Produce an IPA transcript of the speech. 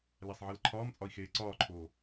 læsˤʕilǃʰɒːmt͡sʼɒi̯ xeːǀɒːǃʰoː

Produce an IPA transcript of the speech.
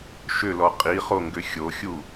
ʃʏlɔ qʼiχoŋɡʏ xʲoxʲu

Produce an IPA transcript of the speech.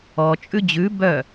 ɔ t͡ʃʼʉd͡ʑʉ bœ

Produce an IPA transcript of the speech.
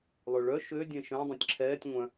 lˠøɭœ ʃø dʲɛ̃ʃœ̃ dˤɛ̃tʲǁʰɛːtʲ ŋʷœ̃

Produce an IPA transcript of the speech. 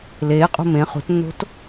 leːqʼṳ mẽ χṳtnːo̤t

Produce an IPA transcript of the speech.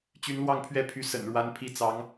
t͡ɕy˧˥nlwɑ˥˧ŋpʰɥɛ˥˩pʰy˧˥ sə̰˨˩nɻwa˧˥npʰi˧˥ t͡sɑ˧˥ŋ

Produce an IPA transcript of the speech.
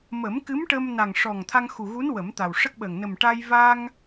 mə˨˩˦mkɨ˧˥mʈə˧mna˨˩ŋ ʂɔ˨˩ŋ t̪ʰa˧ŋxu˨˩ɣu˧˥n wə˨˩˦mt̪a˨˩wʂə˦˥k̚ɓəː˨˩ŋ nə˨˩mʈa˧j va˧ŋ

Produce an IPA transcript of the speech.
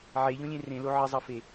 ʕeʎõlʲẽ rẽlo ʕəzˤʌfe

